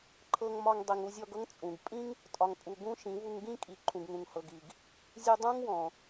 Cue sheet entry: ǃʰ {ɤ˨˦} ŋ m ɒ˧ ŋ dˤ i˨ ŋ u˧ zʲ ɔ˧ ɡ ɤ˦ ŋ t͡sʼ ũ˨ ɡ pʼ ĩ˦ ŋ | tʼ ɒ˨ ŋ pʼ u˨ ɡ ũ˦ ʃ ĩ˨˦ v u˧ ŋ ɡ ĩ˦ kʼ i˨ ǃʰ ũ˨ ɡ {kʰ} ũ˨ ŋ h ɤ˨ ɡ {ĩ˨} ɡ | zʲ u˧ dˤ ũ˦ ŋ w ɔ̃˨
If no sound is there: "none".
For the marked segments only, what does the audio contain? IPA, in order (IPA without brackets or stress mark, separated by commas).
ɤ˧, ŋ, i˨